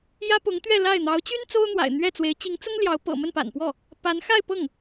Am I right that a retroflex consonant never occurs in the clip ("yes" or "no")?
yes